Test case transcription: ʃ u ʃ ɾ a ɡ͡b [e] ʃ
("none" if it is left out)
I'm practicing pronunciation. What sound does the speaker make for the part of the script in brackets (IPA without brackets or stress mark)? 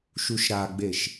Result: e